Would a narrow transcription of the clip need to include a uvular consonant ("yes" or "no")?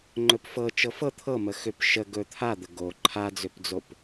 no